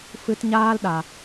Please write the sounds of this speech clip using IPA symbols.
f ɨ˨ t ɲ aː˧ l ɗ a˨

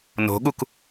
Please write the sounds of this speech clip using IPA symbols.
n o̤ ɠ u k

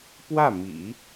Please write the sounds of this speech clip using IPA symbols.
p w ä˥˩ m ḭ˨˩˦

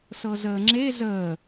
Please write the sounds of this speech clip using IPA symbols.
s ɤ z əː ŋ͡ǁ e z əː

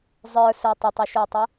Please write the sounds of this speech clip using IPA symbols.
zˤ ə˞ s ə˞ tˤ ə tˤ u ʃ ə˞ tˤ ə˞

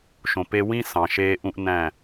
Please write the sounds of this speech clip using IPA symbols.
ʃ õ˨ p e˧ w ĩ˦ s ɑ̃˨ ʃ eː˧ ʔ ũ˦ ʔ n æ̃˦˨

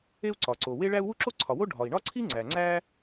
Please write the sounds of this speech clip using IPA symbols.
e˥ u̯ ǀ ɒ˩ ǀ o˩ w e˥ ɭ æ˥ u̯ w u˥ ǁ o˥ ǀʰ ɒ˩ w o˥ ɖʱ ɒ˩ i̯ ɳ ɒ˥ ǀʰ i˥ ŋ͡ǀ æ˩ ŋ͡ǀ æ˥

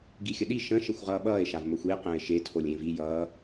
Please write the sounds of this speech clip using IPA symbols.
ɡ i xʲ ə ɗ i ʃ ə̃ ʃ e xʷ ʁ ʌː ɓ ʌː e̯ ʃ a v m ə xʷ i e̯ q ə̃ː e̯ ʃ e tʰ o lʲ ẽ v i j ʌː

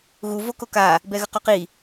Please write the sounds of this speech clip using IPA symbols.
ɣ u v o k o k a | b ɛ ɣ ə q o q i

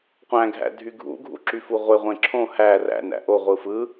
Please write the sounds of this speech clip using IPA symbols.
qʷ æ̃ ɡʱ æ̰ dʱ y ɡʱ ṵ ɡʱ ṵ ǁ y f u ʁʷ e ʁʷ ẽ ǁʰ õ h æ r æ̰ n æ̰ ʔ o ʁʷ ɯ f ɯ

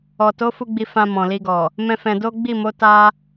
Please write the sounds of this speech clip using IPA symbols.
ɔ˨ t o˨˦ f u˧ ɡ͡b i˧ f ã˧ m ɔ̃˨ l i˧ ɡ ɔ˨ | m ɛ̃˦ f ɛ̃˧ d o˦ ɡ͡b i˦˨ m o˨˦ t a˦

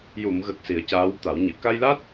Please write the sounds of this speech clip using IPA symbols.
j u˨˩˨ m ɣ ə˨˩ k̚ s i˨˩˦ ə̯ c aː˧˥ w t̪ a˨˩˦ w ɲ ɨ˨˩˨ k a˧ j l a˦˥ t̚

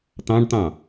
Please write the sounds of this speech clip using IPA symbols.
t̪ ɑ̃ ɖ t̪ ɑ̃

